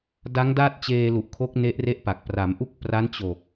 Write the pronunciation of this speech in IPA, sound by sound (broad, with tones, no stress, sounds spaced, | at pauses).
d a˦˥ ŋ d a˥˩ t̚ t͡ɕ eː˧ l u˨˩ ʔ kʰ o˦˥ k̚ n e˦˥ ʔ r e˥˩ ʔ p a˨˩ k̚ p r a˩˦ m ʔ u˥˩ k̚ p r a˦˥ n t͡ɕ o˨˩ k̚